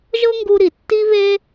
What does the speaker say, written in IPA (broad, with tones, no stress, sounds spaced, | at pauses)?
ʒ ɤ˥ ŋ ɡ u˥ ɾ i˩ tː i˥ β e˥